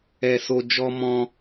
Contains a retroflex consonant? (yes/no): no